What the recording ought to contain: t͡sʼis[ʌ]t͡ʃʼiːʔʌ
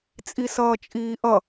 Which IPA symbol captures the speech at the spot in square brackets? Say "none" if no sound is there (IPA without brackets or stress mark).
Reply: ʌː